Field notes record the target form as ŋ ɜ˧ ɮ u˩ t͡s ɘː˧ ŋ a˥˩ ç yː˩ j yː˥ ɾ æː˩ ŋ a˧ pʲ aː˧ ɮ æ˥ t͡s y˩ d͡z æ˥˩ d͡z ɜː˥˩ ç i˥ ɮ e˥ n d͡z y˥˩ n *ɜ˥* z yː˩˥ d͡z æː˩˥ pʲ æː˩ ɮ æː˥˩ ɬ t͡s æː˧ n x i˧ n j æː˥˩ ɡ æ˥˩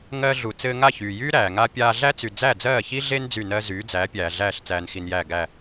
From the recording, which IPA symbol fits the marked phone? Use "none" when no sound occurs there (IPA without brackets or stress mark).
ɜ˥